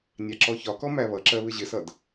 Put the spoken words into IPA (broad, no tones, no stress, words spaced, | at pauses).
nʲɑǁɔçɒkɔ mæβʌǁɜ βɪʑɪsʌd